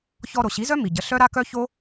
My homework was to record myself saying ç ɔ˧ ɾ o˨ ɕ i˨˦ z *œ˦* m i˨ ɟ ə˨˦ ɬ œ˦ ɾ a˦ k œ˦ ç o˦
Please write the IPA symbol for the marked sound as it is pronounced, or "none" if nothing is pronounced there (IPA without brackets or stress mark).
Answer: œ˦